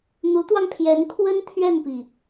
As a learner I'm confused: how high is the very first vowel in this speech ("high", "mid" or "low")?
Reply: high